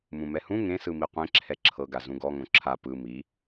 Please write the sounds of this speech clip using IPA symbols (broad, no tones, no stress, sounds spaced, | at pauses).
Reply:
m ũ m ɛ h ũ ŋ ẽ s ɯ m i qʷ ẽ ǁʰ ɛ ǁʰ ɤ ɡ a z ũ ɡ ɔ ŋ õ ǁʰ a p ɯ m i